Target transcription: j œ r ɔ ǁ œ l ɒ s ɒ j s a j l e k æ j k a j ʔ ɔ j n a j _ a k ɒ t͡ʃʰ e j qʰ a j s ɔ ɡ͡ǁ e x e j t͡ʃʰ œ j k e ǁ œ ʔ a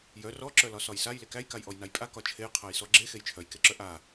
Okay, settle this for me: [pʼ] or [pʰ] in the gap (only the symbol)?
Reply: pʼ